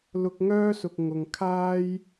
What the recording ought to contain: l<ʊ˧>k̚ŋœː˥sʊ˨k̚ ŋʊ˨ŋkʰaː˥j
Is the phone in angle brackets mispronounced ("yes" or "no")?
no